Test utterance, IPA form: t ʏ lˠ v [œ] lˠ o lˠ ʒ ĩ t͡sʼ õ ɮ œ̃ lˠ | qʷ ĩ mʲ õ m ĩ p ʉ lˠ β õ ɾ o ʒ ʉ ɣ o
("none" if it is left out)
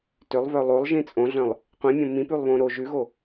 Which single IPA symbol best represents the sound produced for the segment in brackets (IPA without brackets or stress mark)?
œ